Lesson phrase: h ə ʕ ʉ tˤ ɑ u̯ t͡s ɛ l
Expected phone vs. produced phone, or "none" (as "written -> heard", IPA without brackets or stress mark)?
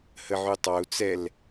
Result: none